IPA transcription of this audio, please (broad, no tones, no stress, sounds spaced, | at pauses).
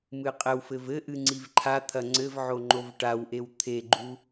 m ɨ qʼ ɘ w f ɘ v ɘ ʔ ɨ ŋ͡ǀ i v ǃʰ a t̪ʰ ɐ ŋ͡ǀ ɘ v ʕ o ŋ͡ǃ o v ʈ a w ʔ e w t̪ʰ e ɡ͡ǃ u